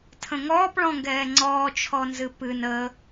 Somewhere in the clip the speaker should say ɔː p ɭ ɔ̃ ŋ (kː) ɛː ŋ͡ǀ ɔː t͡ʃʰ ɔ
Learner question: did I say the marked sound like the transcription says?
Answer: no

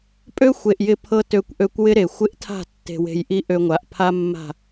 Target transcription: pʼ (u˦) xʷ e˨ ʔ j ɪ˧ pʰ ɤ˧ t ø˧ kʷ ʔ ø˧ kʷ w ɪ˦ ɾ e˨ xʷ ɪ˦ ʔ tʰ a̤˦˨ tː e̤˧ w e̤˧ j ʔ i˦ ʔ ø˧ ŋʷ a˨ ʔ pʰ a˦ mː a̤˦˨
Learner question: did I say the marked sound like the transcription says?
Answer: no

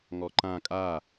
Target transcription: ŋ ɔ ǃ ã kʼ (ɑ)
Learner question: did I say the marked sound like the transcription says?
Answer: no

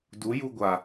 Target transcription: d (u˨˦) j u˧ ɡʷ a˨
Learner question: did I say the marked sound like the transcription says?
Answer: yes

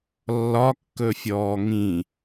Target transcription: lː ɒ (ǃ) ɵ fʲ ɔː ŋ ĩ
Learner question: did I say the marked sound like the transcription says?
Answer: no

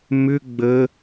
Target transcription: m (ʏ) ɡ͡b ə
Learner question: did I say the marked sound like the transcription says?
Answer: yes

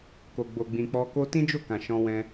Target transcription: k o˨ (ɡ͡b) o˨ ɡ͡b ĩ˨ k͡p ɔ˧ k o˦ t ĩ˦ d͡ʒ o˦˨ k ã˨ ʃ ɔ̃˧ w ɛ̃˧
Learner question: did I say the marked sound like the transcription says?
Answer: yes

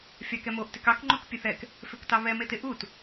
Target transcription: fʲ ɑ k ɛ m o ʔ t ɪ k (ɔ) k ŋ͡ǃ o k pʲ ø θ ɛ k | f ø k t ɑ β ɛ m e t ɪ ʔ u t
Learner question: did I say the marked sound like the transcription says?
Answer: no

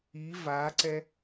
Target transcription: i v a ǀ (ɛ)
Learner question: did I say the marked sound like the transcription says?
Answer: yes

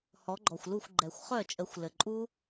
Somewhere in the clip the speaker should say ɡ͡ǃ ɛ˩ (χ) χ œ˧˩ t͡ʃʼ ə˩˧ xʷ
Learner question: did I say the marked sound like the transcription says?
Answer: no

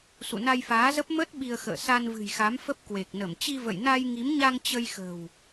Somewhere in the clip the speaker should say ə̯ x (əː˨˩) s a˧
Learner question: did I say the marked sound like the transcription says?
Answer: no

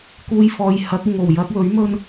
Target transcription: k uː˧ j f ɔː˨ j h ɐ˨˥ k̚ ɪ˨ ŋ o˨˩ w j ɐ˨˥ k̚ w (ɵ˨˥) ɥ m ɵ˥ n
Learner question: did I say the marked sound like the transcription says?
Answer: yes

